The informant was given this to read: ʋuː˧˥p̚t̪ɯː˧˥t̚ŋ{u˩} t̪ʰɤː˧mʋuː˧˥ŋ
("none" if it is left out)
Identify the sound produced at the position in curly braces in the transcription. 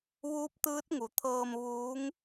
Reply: u˩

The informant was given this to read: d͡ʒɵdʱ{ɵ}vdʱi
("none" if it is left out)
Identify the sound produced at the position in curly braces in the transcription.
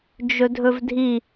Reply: ɵ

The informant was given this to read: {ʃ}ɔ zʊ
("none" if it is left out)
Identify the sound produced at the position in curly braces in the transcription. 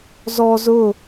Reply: z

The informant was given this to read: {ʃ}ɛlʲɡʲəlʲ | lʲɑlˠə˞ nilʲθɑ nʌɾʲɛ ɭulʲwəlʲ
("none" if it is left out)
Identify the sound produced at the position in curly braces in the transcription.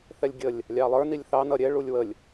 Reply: θ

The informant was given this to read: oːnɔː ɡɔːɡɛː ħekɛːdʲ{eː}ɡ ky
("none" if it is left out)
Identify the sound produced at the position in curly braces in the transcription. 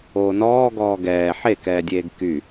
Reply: eː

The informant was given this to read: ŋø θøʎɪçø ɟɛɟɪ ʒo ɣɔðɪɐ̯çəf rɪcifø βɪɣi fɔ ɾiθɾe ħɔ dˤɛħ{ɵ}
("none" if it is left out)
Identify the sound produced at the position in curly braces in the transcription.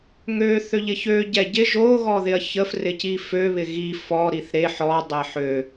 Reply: ø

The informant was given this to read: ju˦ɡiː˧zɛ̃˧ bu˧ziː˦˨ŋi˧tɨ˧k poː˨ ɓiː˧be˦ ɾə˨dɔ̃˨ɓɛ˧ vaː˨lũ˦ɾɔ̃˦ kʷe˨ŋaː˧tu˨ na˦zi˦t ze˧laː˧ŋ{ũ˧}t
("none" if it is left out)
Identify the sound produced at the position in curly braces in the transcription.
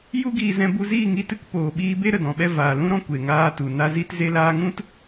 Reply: ũ˦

